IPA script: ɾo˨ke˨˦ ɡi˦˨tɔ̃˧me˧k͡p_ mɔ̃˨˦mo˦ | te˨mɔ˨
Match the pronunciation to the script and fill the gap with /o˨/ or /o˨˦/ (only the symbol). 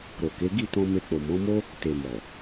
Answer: o˨